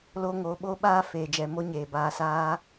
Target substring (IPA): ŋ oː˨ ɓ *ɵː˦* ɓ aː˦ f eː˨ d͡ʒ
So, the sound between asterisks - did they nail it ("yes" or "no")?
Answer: no